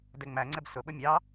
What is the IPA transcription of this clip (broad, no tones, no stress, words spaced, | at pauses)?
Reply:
dɛŋ͡mæŋ͡ǀɛb sʊɓʊ mʲɑ